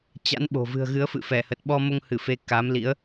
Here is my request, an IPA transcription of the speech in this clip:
t͡ɕ a̰˧˥ n ɓ o̤˨˩ v ɨ̤˨˩ ə̯ ɣ ɨ˨˦ ə̯ f ɨ̰˧˨ f ɛ˧˩ h ə˨˩ t̚ ɓ ɔ˧ m o˧ ŋ h ɨ˧˩ f e˧ k a˨˦ m l ḭ˧˥ ə̯

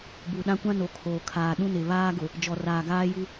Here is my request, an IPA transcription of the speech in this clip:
b u˨ ɗ ã˦ kʷ ã˦ n o˨ kʰ oː˨ kʰ aː˨ ɗ ũ˦ n ɪ˨ β aː˦ ɡ ʊ˨ | d͡ʒ ɔ˨ r aː˨ ɡ aː˦ j u˦

